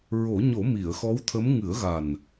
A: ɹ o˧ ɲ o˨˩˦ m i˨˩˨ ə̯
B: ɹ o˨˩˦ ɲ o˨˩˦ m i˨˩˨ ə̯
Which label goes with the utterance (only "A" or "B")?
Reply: B